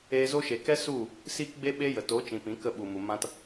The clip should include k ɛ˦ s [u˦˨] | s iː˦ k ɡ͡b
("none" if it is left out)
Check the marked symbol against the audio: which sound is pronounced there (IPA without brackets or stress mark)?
u˦˨